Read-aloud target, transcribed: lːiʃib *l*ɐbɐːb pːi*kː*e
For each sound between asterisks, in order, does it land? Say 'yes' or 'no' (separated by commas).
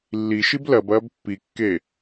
yes, yes